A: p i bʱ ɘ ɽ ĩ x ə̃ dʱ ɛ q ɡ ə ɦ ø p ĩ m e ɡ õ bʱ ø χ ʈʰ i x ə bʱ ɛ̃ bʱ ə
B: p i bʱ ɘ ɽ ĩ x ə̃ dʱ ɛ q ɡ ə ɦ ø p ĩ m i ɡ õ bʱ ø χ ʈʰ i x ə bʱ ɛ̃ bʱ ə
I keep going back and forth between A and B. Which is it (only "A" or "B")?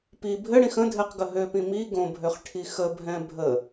B